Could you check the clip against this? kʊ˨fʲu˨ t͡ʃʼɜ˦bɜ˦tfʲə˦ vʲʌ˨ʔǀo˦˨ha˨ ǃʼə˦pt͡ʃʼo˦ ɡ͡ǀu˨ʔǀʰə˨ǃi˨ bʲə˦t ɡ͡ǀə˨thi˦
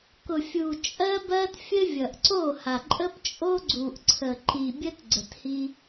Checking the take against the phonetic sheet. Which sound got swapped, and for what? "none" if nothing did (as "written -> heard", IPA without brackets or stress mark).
none